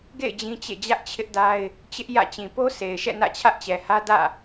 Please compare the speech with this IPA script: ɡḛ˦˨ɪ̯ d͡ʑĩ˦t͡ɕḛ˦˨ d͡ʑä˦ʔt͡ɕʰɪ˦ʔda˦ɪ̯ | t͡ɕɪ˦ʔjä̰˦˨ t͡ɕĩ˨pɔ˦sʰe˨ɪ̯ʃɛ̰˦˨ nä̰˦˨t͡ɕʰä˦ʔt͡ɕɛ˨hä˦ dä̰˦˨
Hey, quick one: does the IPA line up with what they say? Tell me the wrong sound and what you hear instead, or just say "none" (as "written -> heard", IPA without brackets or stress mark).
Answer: ɔ˦ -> o˦